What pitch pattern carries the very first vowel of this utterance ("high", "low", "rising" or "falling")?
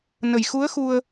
low